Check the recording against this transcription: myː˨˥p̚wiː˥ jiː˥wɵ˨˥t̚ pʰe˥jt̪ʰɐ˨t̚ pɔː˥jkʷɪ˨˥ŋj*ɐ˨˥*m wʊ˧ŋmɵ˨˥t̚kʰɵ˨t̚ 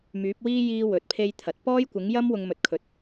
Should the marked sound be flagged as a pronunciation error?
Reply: yes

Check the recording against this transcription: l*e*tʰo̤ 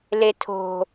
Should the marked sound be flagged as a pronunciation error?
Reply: no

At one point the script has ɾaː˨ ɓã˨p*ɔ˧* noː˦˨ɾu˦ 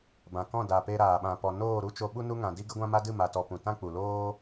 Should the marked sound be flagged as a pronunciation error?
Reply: yes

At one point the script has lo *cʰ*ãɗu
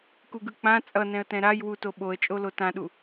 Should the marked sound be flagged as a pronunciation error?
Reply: yes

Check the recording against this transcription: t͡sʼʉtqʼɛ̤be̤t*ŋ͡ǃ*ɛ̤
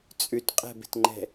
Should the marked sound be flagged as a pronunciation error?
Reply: no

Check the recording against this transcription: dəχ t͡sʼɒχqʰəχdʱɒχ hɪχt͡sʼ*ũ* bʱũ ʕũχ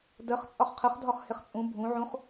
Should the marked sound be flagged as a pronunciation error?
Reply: no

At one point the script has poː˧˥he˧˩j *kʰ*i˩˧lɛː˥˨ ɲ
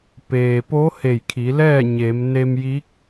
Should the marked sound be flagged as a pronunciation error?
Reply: no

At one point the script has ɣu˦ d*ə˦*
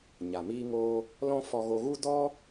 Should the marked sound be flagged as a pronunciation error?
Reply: yes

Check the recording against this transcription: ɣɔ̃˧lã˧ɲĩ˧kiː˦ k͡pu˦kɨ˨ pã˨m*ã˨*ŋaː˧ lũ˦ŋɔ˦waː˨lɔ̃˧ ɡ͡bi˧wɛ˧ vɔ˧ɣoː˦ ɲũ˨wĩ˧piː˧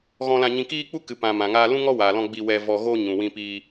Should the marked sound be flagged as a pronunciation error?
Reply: no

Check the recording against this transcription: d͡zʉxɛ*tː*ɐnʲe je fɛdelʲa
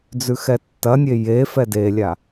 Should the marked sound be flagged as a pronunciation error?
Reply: no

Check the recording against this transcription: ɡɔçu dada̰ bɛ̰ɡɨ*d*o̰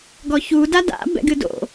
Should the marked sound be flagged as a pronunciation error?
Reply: no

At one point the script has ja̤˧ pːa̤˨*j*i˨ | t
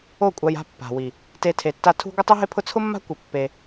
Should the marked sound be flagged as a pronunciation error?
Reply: yes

